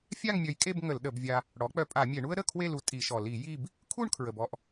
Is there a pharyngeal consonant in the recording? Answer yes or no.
no